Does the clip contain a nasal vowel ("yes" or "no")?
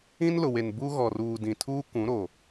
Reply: yes